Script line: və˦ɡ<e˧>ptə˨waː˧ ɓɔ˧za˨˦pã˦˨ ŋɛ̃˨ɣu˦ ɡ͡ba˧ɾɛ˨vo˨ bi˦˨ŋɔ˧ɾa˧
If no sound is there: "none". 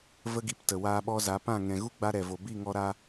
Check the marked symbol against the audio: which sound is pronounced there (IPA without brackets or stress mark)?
i˧